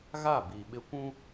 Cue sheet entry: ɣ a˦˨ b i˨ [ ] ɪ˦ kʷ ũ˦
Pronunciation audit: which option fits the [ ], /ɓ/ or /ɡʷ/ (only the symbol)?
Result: ɓ